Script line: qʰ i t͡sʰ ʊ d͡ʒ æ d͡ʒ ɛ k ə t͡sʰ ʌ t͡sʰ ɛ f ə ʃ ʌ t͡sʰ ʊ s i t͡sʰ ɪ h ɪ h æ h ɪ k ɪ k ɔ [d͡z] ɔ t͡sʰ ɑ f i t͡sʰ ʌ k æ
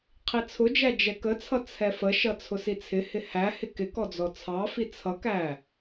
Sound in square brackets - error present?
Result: no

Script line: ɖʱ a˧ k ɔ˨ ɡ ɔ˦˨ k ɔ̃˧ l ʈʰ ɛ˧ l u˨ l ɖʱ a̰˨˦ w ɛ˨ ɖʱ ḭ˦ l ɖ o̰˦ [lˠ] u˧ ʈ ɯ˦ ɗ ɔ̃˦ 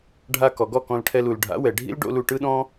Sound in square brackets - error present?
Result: yes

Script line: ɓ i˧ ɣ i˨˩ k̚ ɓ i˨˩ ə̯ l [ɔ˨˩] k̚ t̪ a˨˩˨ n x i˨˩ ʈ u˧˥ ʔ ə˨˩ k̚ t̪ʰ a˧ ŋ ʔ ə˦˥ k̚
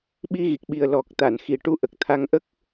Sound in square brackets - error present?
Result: no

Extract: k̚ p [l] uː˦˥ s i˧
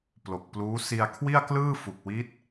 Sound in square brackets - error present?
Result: no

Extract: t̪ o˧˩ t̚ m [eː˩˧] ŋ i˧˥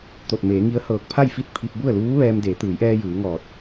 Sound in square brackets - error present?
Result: no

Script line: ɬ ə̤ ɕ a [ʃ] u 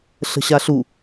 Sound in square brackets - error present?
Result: yes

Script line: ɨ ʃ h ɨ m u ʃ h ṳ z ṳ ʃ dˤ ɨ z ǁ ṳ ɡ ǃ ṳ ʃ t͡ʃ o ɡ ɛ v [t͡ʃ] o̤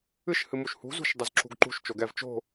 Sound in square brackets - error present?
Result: no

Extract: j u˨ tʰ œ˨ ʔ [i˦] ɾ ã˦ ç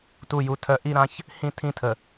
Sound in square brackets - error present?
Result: no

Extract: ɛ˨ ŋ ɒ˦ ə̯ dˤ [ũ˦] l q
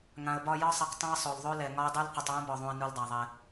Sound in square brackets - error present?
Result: yes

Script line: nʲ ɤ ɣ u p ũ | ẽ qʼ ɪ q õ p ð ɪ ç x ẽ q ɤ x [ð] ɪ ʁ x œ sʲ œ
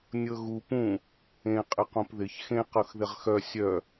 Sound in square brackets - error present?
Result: no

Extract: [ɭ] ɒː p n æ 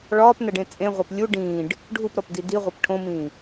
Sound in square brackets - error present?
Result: no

